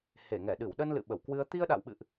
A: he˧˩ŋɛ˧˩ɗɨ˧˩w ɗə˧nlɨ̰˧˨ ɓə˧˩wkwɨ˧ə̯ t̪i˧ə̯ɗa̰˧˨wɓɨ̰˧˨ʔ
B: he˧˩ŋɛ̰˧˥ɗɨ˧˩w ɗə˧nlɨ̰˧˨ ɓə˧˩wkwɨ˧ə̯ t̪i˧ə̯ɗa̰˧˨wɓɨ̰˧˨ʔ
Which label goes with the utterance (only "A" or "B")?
A